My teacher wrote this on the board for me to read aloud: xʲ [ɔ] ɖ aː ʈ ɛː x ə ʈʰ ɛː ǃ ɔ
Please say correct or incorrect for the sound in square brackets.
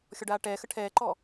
correct